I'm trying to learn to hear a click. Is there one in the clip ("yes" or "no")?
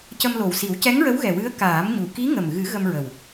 no